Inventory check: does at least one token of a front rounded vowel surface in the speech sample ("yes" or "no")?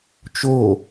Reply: no